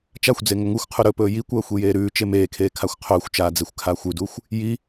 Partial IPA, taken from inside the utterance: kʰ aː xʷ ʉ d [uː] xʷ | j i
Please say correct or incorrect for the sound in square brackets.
correct